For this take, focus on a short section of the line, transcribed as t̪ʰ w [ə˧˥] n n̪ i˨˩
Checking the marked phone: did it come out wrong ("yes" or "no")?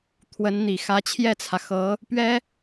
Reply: no